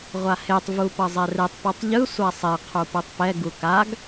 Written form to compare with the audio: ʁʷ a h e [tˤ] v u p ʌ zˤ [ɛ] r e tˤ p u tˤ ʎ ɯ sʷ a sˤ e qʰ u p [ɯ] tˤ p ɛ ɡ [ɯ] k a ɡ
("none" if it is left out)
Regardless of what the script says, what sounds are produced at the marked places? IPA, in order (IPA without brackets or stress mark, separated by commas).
tˤ, ɛ, ɯ, u